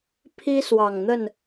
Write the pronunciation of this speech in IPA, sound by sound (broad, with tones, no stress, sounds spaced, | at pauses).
pʰ i˦ s w ɑ˨˩ ŋ n̪ ə˥˨ n